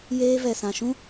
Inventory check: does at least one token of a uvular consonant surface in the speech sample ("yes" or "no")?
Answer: no